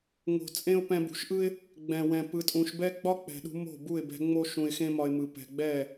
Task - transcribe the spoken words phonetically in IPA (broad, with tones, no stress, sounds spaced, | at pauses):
ŋ o̤˨ t͡sʼ ẽ˦ ʊ̯ p ɛ̃˧ b ṳ˨ ʃ ʔ ɯ˦ ɪ̯ | ɡ͡b ɛ̃˨ w ɛ̃˨ p ɯ˧ tʼ ũ˧ ʃ b ɛ˦ ɡ͡b ɒ˦ k͡p ɛ̤˨ ɗ ṳ˧ m o̤˦˨ b u˦˨ ɪ̯ b ɛ̤˧ ŋ͡m o˦ ʃ ũ˧ ɪ̯ x ẽ˦ m ɒ˧ ɪ̯ m ɯ˨ p ɛ̤˨ ɡ͡b ɛ˦˨